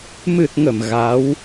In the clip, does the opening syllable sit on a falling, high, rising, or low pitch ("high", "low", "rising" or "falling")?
low